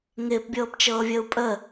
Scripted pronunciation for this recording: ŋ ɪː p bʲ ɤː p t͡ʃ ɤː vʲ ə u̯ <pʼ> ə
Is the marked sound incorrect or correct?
correct